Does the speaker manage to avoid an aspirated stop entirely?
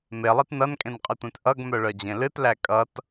yes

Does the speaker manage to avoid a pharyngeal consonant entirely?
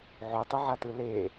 no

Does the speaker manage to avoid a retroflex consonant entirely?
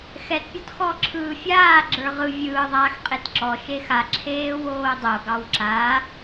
yes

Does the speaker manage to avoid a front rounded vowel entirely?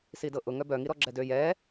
no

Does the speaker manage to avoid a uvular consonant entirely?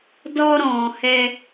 yes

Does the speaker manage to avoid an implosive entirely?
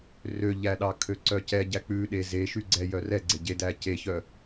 no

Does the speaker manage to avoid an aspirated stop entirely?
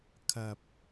no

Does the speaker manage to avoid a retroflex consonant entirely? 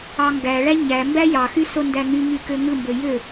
no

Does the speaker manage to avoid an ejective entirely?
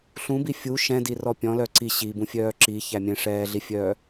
yes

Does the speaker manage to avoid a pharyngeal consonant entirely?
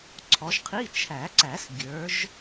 yes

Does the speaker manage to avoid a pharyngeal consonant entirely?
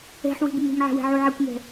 no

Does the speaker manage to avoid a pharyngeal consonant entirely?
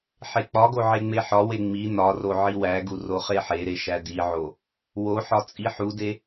no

